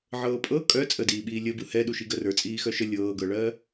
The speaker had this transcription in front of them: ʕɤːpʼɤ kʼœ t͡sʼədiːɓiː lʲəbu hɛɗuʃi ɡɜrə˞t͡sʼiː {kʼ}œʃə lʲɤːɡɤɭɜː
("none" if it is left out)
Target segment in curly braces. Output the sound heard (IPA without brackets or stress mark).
x